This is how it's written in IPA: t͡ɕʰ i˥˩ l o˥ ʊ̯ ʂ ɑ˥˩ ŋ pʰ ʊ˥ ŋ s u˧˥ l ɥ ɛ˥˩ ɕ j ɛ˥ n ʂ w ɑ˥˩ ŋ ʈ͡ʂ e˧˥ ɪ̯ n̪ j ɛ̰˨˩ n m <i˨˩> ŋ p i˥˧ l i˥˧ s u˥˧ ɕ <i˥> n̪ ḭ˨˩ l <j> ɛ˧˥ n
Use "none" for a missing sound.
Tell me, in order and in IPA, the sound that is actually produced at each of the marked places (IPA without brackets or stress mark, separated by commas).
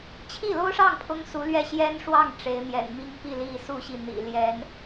i˥, i˥˩, j